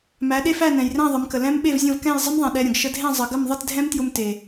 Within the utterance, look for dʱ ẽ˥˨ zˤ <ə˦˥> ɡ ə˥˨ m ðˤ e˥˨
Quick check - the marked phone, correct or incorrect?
incorrect